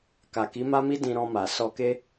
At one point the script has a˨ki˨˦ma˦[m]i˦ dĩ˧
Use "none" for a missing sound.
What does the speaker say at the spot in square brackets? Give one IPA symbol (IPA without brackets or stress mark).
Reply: m